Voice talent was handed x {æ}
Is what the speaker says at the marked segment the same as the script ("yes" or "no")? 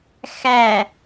yes